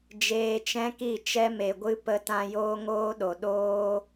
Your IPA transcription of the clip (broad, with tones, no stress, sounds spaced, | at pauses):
d͡ʒ eː˧ t͡ʃ ɛ̃˦ k i˦˨ t͡ʃ ɛ˦ m e˨ ɡʷ ɨ˦ p ə˧ t ã˧ j oː˦ ŋ oː˦ ɗ o˨ ɗ oː˦